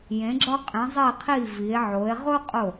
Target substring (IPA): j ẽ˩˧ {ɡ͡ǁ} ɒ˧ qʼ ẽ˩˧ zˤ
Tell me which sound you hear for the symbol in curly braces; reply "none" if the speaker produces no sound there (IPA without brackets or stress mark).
ɡ͡ǁ